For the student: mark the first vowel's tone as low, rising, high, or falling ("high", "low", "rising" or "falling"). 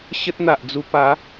high